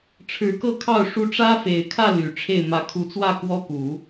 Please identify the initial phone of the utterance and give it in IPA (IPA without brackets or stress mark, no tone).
ʈ͡ʂʰ